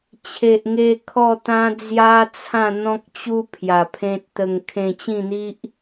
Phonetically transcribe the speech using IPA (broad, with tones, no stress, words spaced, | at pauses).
t͡ɕʰe˨ʔŋe˧ kʰɔ˥˧t̪ã˦ d͡zja˦t͡sʰã˥˧ n̪ɔ̃˦k̚t͡ɕu˦ pʰja˨˩pʰẽ˦t̚t̪ə˧ŋ kʰẽ˧t͡ɕĩ˥˧n̪i˦ʔ